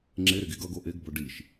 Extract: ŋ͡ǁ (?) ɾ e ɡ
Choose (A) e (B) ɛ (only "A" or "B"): A